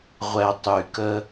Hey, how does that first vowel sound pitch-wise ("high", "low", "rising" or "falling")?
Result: low